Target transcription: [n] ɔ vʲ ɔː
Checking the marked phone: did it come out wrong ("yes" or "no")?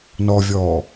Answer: no